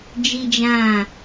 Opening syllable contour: high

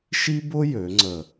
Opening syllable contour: high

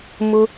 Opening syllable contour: high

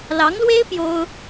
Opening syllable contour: rising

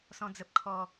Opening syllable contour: low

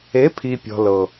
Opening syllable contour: rising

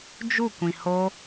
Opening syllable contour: falling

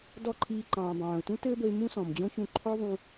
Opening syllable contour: falling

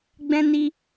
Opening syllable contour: high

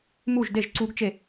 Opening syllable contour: falling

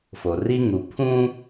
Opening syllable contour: low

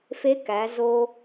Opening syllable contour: rising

